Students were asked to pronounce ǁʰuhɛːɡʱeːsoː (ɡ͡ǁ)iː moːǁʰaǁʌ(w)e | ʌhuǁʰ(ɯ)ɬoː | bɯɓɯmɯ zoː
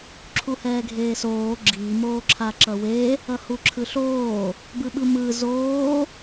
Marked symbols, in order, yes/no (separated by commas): yes, yes, yes